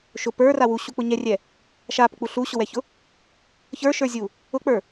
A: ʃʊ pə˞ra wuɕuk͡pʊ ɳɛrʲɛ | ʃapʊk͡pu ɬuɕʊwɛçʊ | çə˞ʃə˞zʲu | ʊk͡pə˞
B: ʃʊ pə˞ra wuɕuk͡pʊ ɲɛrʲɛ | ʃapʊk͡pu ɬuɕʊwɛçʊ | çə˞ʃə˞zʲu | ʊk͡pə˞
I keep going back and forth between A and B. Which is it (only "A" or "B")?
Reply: B